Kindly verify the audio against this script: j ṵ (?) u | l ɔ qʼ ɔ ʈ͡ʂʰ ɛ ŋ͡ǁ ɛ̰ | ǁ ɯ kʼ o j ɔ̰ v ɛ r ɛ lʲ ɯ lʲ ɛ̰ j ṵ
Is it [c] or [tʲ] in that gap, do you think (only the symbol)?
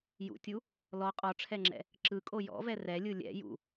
tʲ